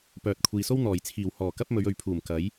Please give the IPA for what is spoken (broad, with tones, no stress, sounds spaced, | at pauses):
p œː˨ t̚ kʷʰ iː˨ s o˥ w n̪ ɔː˨˩ j t͡sʰ iː˨˩ w h ɔː˨˩ k ɐ˥ p̚ m ɵ˨˧ ɥ ɵ˨ ɥ pʰ uː˨˩ m k ɐ˨˥ j